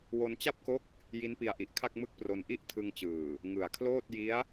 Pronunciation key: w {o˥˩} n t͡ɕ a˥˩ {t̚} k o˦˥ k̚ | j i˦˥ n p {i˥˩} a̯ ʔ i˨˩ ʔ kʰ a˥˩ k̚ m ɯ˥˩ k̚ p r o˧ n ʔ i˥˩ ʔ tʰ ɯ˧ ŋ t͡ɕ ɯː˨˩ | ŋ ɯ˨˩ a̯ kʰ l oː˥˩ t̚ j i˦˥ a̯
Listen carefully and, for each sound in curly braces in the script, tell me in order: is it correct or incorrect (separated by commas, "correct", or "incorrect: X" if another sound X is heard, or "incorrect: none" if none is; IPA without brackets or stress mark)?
incorrect: o˧, incorrect: p̚, incorrect: i˧